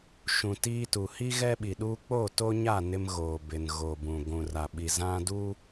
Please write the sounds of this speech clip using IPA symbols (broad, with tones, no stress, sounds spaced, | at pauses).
ʃ ũ˨ t iː˦ t u˨ h i˦ ɣ ɛ˦ ɓ i˨ ɗ uː˦ k͡p o˦˨ t o˦ ɲ a˦˨ n ɪ˦ m ɣ oː˨ b ɪ˨ n ɣ o˨ b ũ˨ ɡʷ ũ˨ r a˨ ɓ i˨ z ã˦ d uː˦